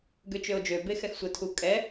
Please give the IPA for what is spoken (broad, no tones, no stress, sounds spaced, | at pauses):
ɡ ø t͡ʃ ø o̯ d͡ʒ ø b e x ɛ x sʷ ə tʰ u kʼ ɛ